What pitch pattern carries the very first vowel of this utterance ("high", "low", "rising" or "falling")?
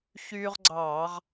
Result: high